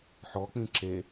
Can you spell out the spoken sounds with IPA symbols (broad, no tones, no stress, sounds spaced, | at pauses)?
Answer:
ħ ɔ k͡p ĩ ǁ e